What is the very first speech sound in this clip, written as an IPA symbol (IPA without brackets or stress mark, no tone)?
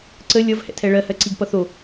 ǀ